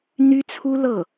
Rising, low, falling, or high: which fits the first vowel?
high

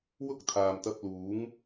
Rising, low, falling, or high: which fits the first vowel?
high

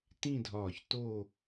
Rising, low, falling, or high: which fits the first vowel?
falling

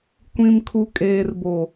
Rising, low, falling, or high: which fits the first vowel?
low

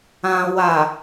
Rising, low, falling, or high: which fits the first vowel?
low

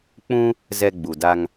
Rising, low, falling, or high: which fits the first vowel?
high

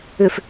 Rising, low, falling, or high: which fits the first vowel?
low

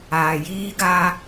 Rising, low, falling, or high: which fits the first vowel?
low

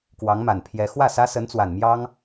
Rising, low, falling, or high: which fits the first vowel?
rising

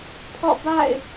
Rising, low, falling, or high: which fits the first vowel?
falling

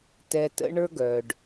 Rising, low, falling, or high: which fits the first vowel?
low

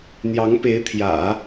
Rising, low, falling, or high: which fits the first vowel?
rising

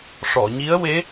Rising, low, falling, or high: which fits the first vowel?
low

